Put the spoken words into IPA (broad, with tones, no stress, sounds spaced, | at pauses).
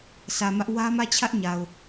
sʰ ä˨ m ä˦ ʔ w ä˦ m ä˦˨ t͡ɕʰ ä˦ ʔ ɲ a˨ ʊ̯